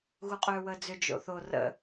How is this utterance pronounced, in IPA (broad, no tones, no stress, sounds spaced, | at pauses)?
ɣ u qʼ ʏː w əː d͡z ʏ d͡ʒ o̰ θ o r ə̰